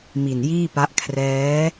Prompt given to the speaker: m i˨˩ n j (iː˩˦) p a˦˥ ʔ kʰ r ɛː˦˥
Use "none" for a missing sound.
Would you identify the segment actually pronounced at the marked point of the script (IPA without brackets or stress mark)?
iː˥˩